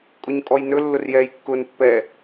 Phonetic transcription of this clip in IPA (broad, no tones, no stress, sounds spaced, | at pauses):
kʼ ʊ ɲ kʼ ɔ j n ɵ lː ʊ r j ɛː j kː ʊː n pː ɛ